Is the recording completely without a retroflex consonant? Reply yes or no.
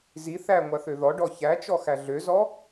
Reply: no